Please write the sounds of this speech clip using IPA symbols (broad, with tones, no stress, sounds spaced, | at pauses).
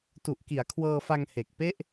t u˨˩ ʔ k i˩˦ a̯ kʰ w ɤː˧ f a˧ ŋ h e˨˩ k̚ p e˥˩ ʔ